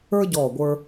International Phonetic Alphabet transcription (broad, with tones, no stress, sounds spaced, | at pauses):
ə˞˥ ɟ ɔː˧˩ ɡʷ ə˞˧